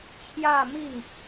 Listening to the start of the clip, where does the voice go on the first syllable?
falling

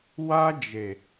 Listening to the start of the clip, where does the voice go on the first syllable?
high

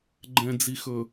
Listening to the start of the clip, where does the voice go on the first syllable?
low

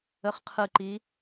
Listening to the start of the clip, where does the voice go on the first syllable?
falling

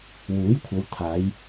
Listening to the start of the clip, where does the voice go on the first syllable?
rising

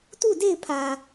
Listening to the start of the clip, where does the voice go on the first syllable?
falling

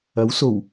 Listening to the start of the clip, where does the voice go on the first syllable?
rising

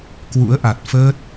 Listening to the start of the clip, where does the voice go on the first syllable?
rising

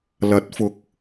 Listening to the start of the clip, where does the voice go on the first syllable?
rising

